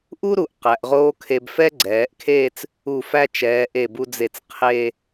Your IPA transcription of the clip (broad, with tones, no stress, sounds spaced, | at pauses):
ʔ u˥ ɾ u˩˧ ʔ q æ˩˧ ʔ ʁ oː˥ kʰ e˧ b f ɛ˥ ɡ͡ǀ ɛː˩˧ ʔ kʰ eː˥˧ t͡s | u˧˩ f æ˥˧ t͡ʃ ɛː˩˧ ʔ e˧˩ b u˧ d͡z e˧˩ t͡s qʰ eː˥˧